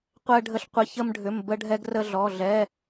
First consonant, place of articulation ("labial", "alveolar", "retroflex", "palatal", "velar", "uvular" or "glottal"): uvular